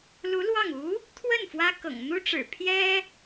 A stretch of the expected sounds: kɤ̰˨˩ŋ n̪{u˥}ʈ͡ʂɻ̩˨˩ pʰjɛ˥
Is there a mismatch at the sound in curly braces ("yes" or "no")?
no